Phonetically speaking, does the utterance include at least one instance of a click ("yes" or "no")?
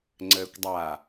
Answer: yes